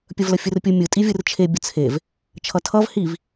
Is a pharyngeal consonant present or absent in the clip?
absent